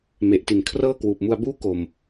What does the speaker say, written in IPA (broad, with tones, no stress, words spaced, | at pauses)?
me˨˩ʔti˨˩n kʰrɤː˥˩kwuː˨˩p̚mu˧a̯buː˥˩ ko˨˩m